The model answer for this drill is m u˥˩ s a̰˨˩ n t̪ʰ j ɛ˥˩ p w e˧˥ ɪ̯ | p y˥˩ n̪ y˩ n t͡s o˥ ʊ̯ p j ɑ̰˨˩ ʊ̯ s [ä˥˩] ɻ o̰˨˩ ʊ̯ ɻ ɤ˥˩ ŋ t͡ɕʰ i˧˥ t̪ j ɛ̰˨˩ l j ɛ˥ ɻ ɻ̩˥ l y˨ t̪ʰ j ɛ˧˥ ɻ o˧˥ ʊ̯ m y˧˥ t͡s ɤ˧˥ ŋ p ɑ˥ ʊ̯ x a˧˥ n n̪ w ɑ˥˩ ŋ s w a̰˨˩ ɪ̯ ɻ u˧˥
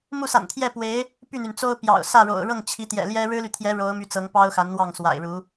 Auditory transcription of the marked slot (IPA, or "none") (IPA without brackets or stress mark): ä˥˩